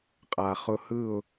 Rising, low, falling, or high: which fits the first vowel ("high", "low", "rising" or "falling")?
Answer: low